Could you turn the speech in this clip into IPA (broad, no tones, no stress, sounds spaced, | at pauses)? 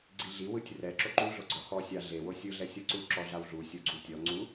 ɡ͡ǀ i ɮ i w ɯ tʲ r ɛ ǁ o ǃ u ɮ o ɡ͡ǀ ɔ x ɔ sʲ a ɮ e w o sʲ ɯ ɮ ɛ sʲ ɤ ǀ u ǁ ɔ ɮ a w ɮ u sʲ o ɡ͡ǀ u tʲ ɔ ŋ͡ǀ u